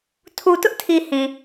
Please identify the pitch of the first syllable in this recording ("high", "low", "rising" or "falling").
low